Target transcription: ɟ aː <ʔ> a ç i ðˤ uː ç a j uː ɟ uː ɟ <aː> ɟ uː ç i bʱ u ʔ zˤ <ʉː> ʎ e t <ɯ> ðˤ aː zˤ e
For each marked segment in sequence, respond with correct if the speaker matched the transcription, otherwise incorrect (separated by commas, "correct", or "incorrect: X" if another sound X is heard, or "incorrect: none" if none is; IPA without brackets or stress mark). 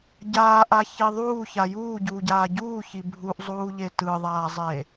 correct, correct, incorrect: uː, correct